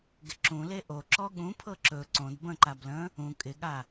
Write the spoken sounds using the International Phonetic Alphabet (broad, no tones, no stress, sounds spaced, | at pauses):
ɡ ɪ ǁ ũ l e ʔ o ǁ ɔ ɠ ũ pʰ ɤ ǁ ɵ ǀ õ d b ə̃ ǃ a b l ə̃ | ũ kʼ ɪ ɠ a